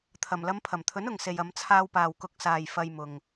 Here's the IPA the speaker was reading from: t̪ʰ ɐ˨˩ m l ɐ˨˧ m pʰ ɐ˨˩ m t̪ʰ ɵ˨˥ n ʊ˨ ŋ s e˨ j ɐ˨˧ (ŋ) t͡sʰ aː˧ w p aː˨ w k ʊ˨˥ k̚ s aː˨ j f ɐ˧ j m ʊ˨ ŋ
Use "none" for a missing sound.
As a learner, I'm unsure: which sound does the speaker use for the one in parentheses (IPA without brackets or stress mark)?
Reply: m